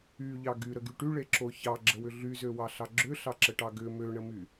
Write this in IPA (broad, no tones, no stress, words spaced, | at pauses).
yʎɑ ɡyɾəɡy ʈyɭeǁo çɑɡ͡ǁəwʏ ɮyzøwɑɬɑ ɡ͡ǁʏɬɑǁəʈɑ ɡʏ møɳəmy